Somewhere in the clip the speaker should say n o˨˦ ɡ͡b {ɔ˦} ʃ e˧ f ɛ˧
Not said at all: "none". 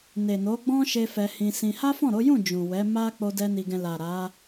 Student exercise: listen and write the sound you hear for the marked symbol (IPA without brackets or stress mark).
ɔ̃˦